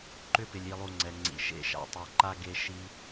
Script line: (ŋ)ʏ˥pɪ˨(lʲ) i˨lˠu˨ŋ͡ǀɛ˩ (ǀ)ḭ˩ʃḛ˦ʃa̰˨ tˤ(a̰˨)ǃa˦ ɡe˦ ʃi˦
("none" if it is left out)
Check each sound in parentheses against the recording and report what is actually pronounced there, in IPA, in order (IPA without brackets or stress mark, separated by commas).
ǃ, lʲ, ŋ͡ǀ, a˨